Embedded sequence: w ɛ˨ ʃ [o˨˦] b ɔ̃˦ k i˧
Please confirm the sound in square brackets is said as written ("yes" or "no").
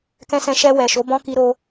yes